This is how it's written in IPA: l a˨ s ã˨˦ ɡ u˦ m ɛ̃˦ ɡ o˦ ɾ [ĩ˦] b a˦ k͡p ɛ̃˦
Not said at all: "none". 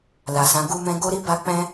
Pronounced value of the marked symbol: i˦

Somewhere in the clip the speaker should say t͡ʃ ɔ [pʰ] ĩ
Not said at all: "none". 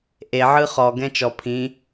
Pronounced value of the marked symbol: pʰ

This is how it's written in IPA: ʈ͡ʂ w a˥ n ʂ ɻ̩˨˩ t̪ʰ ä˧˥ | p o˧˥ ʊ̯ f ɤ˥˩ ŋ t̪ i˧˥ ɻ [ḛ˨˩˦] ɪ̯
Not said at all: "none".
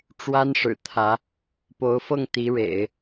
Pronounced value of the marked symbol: ḛ˨˩˦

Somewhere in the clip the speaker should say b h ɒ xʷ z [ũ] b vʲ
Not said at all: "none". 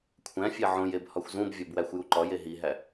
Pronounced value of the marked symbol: ũ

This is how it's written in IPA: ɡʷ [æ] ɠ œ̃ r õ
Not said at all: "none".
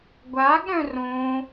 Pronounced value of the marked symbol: a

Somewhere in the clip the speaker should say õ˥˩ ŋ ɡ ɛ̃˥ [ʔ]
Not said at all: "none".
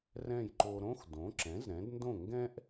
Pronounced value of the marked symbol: ʔ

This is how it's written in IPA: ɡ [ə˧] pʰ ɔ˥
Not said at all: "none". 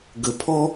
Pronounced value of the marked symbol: ə˧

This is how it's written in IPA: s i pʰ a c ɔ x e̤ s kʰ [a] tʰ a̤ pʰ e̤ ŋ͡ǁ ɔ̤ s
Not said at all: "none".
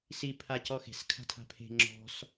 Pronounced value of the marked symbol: a̤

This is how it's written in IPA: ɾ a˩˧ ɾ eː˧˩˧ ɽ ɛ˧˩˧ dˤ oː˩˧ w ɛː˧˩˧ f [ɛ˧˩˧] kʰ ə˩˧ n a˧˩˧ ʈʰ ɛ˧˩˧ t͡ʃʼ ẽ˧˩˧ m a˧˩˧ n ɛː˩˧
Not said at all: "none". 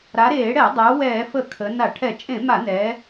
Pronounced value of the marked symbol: ə˧˩˧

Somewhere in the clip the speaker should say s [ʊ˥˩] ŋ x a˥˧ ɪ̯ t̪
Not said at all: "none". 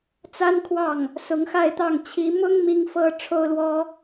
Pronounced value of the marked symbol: ʊ˧˥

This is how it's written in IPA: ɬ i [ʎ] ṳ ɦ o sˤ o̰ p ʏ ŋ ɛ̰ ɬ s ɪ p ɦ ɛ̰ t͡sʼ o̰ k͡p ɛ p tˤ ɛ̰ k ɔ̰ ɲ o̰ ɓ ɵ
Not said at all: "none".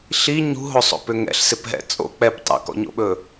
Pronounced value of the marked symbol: ɲ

